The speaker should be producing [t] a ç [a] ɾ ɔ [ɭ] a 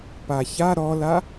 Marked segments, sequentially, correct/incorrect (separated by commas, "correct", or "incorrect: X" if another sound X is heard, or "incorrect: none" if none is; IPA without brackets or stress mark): incorrect: p, correct, incorrect: l